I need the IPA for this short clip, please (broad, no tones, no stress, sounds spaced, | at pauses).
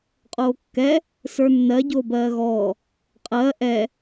qʼ oː kː ɛ | s ə˞ nː ɜ ɟ oː b ɜː ɣ ɔː | qʼ ɜ ʔ ɛ